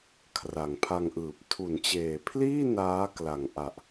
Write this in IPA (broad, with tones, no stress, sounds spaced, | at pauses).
kʰ r a˨˩ ŋ pʰ a˧ ŋ ʔ ɯː˨˩ p̚ tʰ u˩˦ n t͡ɕ eː˨˩ pʰ l iː˥˩ n aː˦˥ k l a˨˩ ŋ ʔ a˨˩ ʔ